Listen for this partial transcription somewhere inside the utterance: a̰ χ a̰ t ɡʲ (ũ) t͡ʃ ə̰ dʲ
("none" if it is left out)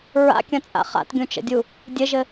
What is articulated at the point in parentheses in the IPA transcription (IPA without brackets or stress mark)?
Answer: ũ